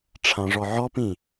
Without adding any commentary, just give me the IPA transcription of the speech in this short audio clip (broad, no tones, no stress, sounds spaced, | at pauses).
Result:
ʈ͡ʂʰ ã ʐ ɔ ʕ ɔ p ĩ